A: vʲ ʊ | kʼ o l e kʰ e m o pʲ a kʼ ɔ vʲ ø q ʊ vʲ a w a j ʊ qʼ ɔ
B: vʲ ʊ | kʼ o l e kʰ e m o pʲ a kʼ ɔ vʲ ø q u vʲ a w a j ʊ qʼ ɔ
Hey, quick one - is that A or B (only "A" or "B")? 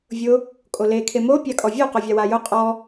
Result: A